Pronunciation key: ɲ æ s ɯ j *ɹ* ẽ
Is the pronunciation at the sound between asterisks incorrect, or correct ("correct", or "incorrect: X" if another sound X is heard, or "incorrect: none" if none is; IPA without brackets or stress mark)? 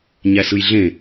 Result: incorrect: ɮ